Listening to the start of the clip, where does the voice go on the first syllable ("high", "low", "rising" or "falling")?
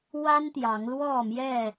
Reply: high